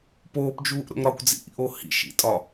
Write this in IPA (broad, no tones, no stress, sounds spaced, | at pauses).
p oː p d͡ʒ uː ʔ ɾ o̰ ŋ ɾ ɒ kʷ d͡z ḭ ʔ ḭ ʔ o h ḭ ʃ ḭ tʼ ɒ